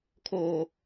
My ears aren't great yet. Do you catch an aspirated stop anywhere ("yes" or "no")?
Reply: yes